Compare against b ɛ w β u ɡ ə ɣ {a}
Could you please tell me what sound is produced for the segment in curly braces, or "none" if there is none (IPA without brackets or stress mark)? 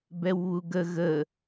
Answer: ə